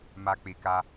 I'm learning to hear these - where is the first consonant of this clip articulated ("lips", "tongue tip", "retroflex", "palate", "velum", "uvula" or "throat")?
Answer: lips